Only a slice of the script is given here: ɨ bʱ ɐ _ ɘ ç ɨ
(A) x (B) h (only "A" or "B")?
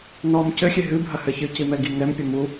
B